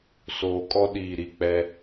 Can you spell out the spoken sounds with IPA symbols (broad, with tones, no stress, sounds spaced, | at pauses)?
s oː˨ kʼ ɔ˦ ɗ iː˨ ɾ i˨ k͡p ɛ˦